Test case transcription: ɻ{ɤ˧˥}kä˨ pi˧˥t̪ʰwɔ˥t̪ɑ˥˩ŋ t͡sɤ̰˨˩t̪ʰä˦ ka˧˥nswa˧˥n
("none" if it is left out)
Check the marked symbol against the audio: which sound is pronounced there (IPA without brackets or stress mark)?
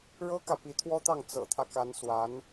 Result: ɤ˥